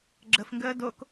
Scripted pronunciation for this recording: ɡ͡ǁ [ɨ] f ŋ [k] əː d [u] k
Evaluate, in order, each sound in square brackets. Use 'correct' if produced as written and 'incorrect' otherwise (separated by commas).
incorrect, incorrect, incorrect